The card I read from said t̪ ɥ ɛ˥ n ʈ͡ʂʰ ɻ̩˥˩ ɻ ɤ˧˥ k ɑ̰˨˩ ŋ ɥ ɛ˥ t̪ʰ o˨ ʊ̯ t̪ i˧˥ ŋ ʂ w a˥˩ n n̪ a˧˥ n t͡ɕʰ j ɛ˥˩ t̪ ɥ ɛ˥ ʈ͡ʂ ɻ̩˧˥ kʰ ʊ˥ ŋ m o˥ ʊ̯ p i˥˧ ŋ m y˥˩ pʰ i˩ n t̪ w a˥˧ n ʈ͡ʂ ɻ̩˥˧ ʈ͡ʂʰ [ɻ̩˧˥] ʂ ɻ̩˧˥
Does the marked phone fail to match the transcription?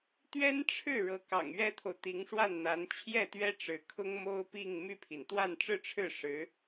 yes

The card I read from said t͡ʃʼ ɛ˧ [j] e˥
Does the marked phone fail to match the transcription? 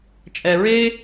yes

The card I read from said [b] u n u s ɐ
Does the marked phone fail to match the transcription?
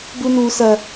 no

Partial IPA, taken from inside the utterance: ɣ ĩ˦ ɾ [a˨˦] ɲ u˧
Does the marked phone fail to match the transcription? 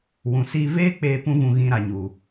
no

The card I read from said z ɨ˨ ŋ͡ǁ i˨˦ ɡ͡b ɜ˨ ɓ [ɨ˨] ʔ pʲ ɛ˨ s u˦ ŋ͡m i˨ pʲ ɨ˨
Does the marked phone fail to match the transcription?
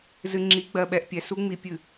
yes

